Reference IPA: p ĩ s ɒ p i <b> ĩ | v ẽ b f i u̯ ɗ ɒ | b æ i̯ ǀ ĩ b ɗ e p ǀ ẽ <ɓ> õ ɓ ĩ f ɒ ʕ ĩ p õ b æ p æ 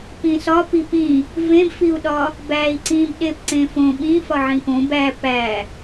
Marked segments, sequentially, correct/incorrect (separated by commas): incorrect, incorrect